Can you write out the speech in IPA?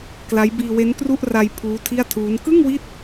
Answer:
k l a˦˥ j b iː˧ w e˦˥ n k r u˥˩ ʔ r a˧ j pʰ uː˦˥ tʰ i˥˩ a̯ tʰ uː˦˥ n k ɯ˥˩ ŋ w i˦˥ t̚

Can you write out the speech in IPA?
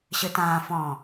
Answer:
ɕ ɯ t ãː f ɔ̃

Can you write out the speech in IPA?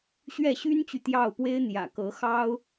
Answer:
ɕ ɥ ɛ˥˩ ɕ y˥ n t͡ɕ y˨ t̪ j ɑ˥˩ ʊ̯ p w e˥ ɪ̯ n̪ j ä̰˨˩ k ɤ˧˥ x ɑ˥ ʊ̯

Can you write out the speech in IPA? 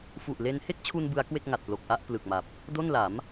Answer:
f u˨˩ ʔ l e˧ n h e˥˩ k̚ t͡ɕʰ u˧ n b ɯ˦˥ a̯ k w e˥˩ k̚ ŋ a˨˩ t̚ p l o˨˩ k̚ ʔ a˥˩ ʔ p l ɯ˨˩ k̚ m a˨˩ p̚ | d o˥˩ n l a˩˦ m

